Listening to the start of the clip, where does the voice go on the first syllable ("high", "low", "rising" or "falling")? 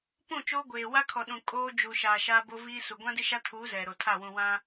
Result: falling